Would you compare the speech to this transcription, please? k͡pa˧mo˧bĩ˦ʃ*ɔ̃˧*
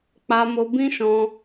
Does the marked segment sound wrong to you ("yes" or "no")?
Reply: no